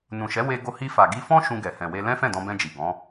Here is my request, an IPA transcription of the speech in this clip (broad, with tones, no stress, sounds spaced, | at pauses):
n ũ˨ ʃ ɛ˨˦ w e˧ ɡ o˧ h i˧ f a˨ ɡ i˧ f ɔ̃˦ ʃ ũ˧ ɡ ɛ˨ h ɛ̃˨ w e˧ l ɛ̃˦ f ɛ̃˦˨ d ɔ̃˧ b ɛ̃˧ d͡ʒ i˨ ɡ ɔ̃˨˦